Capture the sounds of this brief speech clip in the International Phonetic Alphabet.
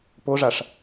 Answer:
p o ʐ a ʂ

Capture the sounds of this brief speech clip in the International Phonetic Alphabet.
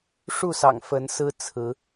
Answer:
ʂ u˥˨ s ɑ̰˨˩ ŋ f ə˨˦ n s ɹ̩˦ t͡sʰ ɹ̩˨˦

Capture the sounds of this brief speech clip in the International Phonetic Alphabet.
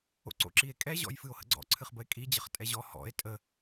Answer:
o̰ ǀ o̰ ǁ i e̯ kʼ ɛ ʑ ɔ̰ j f ɨ o̯ h ə̰ ɡ͡ǀ ɔ̰ ǀʰ ɨ χ b ə e̯ kʼ i d͡ʑ ə χ tʼ ɛ ʑ ɔ h ɔ̰ e̯ tʼ ə

